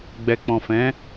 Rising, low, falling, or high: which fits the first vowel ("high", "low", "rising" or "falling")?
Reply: low